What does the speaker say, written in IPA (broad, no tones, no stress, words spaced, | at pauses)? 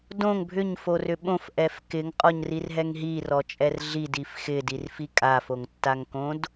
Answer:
dõŋ bʱʏɲforʏ ɓõfʔɛf kɪŋqʼɔɲrirɦɛŋ ɦirɔt͡ʃʼɛr ɮidif xɪdirfi kʼafoŋtːaŋkõd